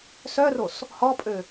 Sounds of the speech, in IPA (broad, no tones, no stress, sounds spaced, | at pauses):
s œ r o s | h ɔ pʼ ø